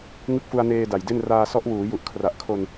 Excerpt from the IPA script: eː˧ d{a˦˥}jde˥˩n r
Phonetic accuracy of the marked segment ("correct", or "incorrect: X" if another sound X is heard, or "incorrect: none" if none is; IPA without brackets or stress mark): incorrect: a˨˩